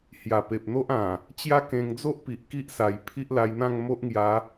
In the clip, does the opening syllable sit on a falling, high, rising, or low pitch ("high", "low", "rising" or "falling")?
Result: low